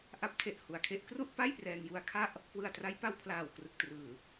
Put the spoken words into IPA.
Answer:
ʔa˦˥p̚tʰe˨˩ʔ hu˨˩a̯kʰe˥˩ʔ kru˥˩ʔpa˥˩j prɛː˧ŋju˦˥a̯kʰa˥˩ʔ | kwɯ˨˩a̯tra˦˥jpa˧w pʰlaː˨˩wkrɯ˨˩k̚trɯː˨˩

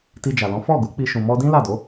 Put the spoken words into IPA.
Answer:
ti˧d͡ʒa˨lɔ̃˨˦ fɔ˦˨ɡu˨˦k͡pi˧ ʃũ˨mɔ˧ dĩ˦la˦˨do˨˦

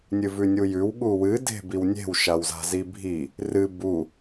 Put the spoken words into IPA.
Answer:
nʲɨvʉnʲujʉw ɠuwɨ de̤biwnʲe̤w ʃawza̤zibʱi | rɨ bu

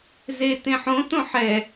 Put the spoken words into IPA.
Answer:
ze tẽħõ tõħɛ

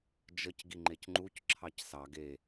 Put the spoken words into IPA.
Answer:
d͡ʒəcɡi ŋ͡ǃecŋ͡ǃucǁʰɑc sɑ ɡe

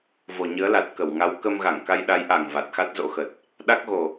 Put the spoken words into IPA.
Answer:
vo˨˩ɲɨ˨˦ə̯la˨˩t̚ kə˧˩wŋa˨˦w kə˧mɣa˧˩ŋ ka˧jɗa˨˦j ʔa˨˩ŋva˨˩t̚xa˦˥t̚ zo̰˧˥xə˨˩t̚ | ɗa˦˥k̚ɣo˨˩

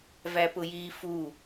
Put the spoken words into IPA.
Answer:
væpʊjiːfu

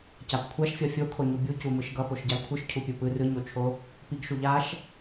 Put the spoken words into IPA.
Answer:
cap kʷʰaʃfʲʌ fʲokʰoɲu bʲucumɯʃ ɡʌpoʃɟal kʷʰɯʃcʰupʲu pɯ rɯɲot͡ʃʰo | piɡʃu ʎaʃ

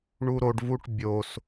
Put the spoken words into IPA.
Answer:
ɳuɾoɖvuʈ bʲos

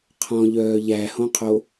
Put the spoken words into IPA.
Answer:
qʰɔ̃ʎœː ʎæhõqʰo

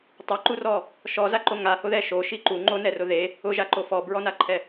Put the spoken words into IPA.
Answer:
tˤɛǃurɔ | ʃɔzaǃo ŋahʊðɛ ʃoʃi ǃu ŋ͡ǃonɛrʊ ðe | ʊʒaǃo fɔbɹɔnaǃʰɛ

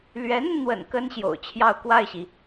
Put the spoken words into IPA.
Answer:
lɥɛ˧˥n̪ə˧nn̪wə̰˨˩n kə˥n ɕjo̰˨˩ʊ̯t͡ɕʰjɑ˥˧ʊ̯ kwa˥˩ɪ̯ɕi˩

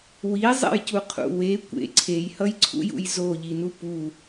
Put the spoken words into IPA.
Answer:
wizˤḛjcuqʰṵ we kʷḛ ǀʰejhʌjǀʰṵjṵj zoʎinu pu

